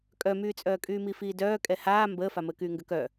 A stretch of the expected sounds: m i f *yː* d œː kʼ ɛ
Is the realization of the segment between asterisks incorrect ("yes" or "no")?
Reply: yes